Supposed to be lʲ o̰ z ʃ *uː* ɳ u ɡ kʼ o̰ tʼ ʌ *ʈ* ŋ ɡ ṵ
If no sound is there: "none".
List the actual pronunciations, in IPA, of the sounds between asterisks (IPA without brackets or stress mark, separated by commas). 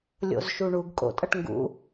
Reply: u, ʈ